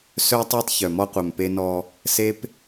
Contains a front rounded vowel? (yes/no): yes